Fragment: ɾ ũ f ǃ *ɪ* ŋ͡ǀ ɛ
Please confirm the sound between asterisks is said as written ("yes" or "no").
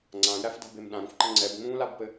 no